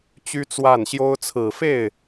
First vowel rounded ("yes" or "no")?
yes